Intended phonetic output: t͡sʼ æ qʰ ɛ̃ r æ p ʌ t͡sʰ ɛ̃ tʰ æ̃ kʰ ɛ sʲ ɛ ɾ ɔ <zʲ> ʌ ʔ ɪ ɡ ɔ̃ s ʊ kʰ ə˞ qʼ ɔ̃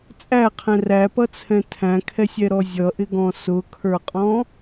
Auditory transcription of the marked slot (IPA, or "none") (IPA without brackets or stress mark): zʲ